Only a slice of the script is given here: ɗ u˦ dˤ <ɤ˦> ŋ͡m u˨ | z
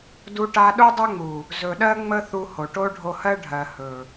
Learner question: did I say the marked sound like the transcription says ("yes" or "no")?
no